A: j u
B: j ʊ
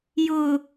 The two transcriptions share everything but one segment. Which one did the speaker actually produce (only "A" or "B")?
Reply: B